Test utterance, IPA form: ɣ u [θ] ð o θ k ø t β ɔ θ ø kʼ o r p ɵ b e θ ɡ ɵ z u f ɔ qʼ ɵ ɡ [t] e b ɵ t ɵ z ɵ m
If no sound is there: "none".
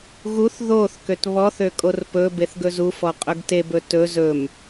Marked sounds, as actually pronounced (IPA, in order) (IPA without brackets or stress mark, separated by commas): θ, t